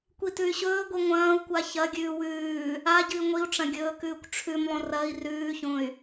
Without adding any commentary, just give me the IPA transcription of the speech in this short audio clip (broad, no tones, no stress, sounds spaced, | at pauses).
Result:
kʷ i t ʉ y̯ ɕ ɵː ɡʷ i ŋʷ ɐ̃ː u̯ kʷ a ç ɐ ɡʲ ʉː w ʉː | a ɟ ɨ i̯ ŋʷ i u̯ ʈ͡ʂ ɐ̃ ɡʲ ɵː k ʉː kʷ ʈ͡ʂʰ ʉ m lˠ õ r ɐ i̯ r ʉː ç õ y̯